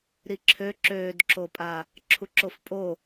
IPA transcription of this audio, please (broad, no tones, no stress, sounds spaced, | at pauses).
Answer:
ɾ i ǁʰ ø ǁ øː d ǁ o pʼ a | ǁʰ u ǁ o f pʼ o